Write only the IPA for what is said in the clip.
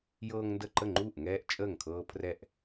j ɤː˦ ŋ n d ə˥˩ ǃ ə˥˩ ŋ͡ǃ uː˥˩ ʔ ŋ ɛː˦ ʔ t͡ʃʼ əː˥˩ ŋ kʰ ɤː˦ pʰ r ɛ˥˩ ʔ

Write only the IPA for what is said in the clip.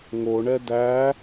ŋ o ɳ ɛ d æ

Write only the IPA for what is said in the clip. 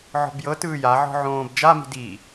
ʕ ɔ̤ b j ɤ t ɯː j a ʕ ɔ̤ ʕ õː b d͡ʒ a m i̤ d iː

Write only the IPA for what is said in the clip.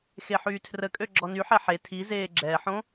x e ħ yː tʰ r ə kʼ ø ɡ͡ǁ ɔ n y ħ ɛ ħ e tʰ i z eː ɡ͡ǁ ɛ ħ õ

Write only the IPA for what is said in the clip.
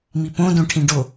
m i p õ d õ ʈʰ ĩ ɖ o

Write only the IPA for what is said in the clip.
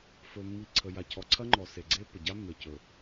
f ɵ˨ mː i˨ ǀʰ ə˨ j a˨ cʰ ɔ˨ ǀʰ ɐ˦ ŋ͡ǃ ɔ˨ s e˨ ɡ͡ǀ e˦ pː ə˨ ɟ a˦ mː e˨ c ɵ˨

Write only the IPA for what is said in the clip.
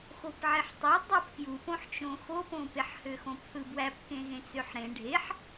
x o p ʕ e ħ tˤ ø dˤ u p k j u p õ ħ t͡ʃ õ x o p õ p e ħ h ø x õ p θ ɯ b w æ p k ẽ ɣ ẽ t͡s ø ħ ɾ ẽ ɖʱ e ħ

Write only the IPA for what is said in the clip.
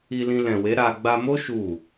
i˧ l ĩ˧ l ɛ̃˨ w e˨˦ ɾ a˧ ɡ͡b a˧ m o˦ ʃ u˦˨

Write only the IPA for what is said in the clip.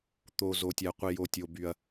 t̪ o˩ z o˩ tʲ ɛ˩ qʷ i˩ j o˩ tʲ o˩ b y˩ ɐ̯

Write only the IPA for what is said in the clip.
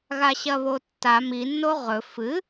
ɣ a ɕ ɐ β o tː a m i nː o ʁ ɵ f ɨ

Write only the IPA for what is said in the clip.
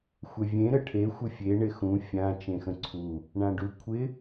xʷ ɛ vʲ ẽ ɾ ə ʈʰ e xʷ ə fʲ e ɳ ɪ x ũ fʲ ã t͡ʃ ẽ x ə̃ ǀʰ u | ɳ ã ɖ u kʷʰ ɪ

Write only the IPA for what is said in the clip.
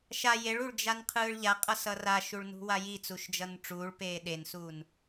ʃ a j e ɭ u ɭ d͡ʒ a n qʰ ɯː ɭ ʎ a qʼ ʌ s ʌ r a ʃ u ɭ n ṳ w a j i t͡s u ʃ d͡ʒ ʌ n ʈ͡ʂ uː ɭ p eː ɗ e n s uː n

